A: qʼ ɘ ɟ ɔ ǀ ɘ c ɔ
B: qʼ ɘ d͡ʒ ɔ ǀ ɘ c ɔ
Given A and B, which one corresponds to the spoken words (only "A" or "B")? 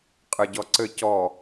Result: A